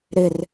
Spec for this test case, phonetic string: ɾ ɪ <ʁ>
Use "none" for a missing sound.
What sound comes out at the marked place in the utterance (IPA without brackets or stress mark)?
r